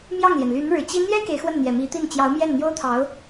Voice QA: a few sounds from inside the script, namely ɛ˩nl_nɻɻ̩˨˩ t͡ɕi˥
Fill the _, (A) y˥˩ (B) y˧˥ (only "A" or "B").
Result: B